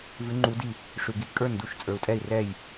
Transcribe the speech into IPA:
vʉ˧˥ŋ͡ǃu˧˥di˥˨ | ʂʉ˨ɡi˧˥ kʼə˞˥˨ndu˥˨ʃ t͡sʼə˞˨u̯tʼɛ˥˨i̯ rɛ˥˨j

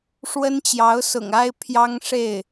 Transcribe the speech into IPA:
ʂwə˥nt͡ɕjɑ˧˥ʊ̯sʊ̰˨˩ŋ a˥ɪ̯ pʰjɑ˥ŋʂe˥˩ɪ̯

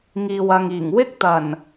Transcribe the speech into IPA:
ŋiː˨wɐ˨ŋiː˨˩ŋ wɪ˥k̚t̪ɐ˨˩n

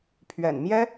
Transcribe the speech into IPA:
pʰɥɛ̰˨˩n mjɛ˥

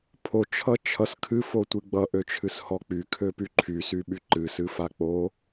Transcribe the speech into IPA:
pʰot͡ʃʰʌ t͡ʃʰʌs kʰɨfotʷɨ ɡ͡bʌʔøt͡ʃʰɨshɔ k͡pykʰøpy ǃʰysyɓy ǃɨsɨfa k͡po

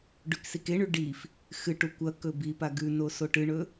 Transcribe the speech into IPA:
ɖʉksikeɳʉ ɖif | xɨʈu kʷɐ kɵbipa ɡʉno soʈɨɳɵ

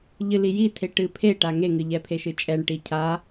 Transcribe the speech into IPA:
ʎɨlijitʰe ʈɨpʰeʈa ŋeŋɨʎɛpʰe ʃɨt͡ʃʼɛɳ ʈicʰa

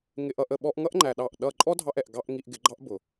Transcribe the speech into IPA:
ŋɪ˧ʔʌ˧ʔ ə˨ɓɔ˧ʔŋʌ˦ʔŋ͡ǃæ˨ ɗɑ˦˨ʔ ɗʌ˦˨ ǃʼɔ˦dʱɑ˧ʔɛ˨ʔ ɡɑ˧ʔ ŋi˧ʔɡɪ˨˦ɡ͡ǃɑ˦ʔ bʊ˨

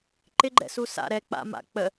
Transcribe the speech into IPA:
ǃɪɡ͡ǃɛ̰ susa̰ ɾɛ k͡pa̰ ma̰ k͡pə

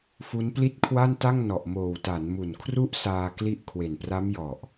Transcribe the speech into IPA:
fu˦˥npli˥˩t̚kʰwa˥˩nta˥˩ŋ nɔ˨˩ʔmoː˨˩w ta˩˦nmu˨˩nkʰru˦˥ʔ saː˧kli˦˥ʔ kʰwe˨˩npra˦˥mjɔ˨˩ʔ

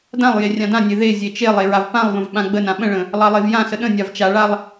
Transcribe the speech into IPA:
dãlˠ jerʲãdãnʲe ðe zʲet͡ʃelˠe ɹavpãlˠvə̃v ɓãɡ͡bənã ɓə̃ɭə̃ | lˠɑlˠevjãsə ɗə̃ nʲavt͡ʃaɭalˠ

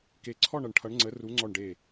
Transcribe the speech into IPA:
ke˨ǀʰɔ˦˨ɳ ʌ˨ɳʈʰʌ˨˥ɳŋ͡ǀə˨˥ ru˨˥ ŋ͡ǀɔ˦˨ɳɖe˦˨

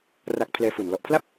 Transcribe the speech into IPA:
ra˨˩k̚ pʰlɛː˧fu˨˩n lɔ˨˩ʔpʰla˥˩p̚

